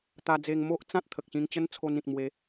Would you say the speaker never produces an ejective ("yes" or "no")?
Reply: yes